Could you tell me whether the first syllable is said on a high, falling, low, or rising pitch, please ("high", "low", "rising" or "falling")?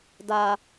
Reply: low